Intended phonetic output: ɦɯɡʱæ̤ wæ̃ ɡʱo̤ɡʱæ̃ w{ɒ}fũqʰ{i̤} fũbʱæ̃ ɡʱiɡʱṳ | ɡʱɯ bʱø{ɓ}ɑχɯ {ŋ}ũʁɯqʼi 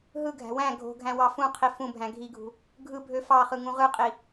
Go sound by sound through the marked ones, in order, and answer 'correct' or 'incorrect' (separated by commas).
incorrect, incorrect, incorrect, correct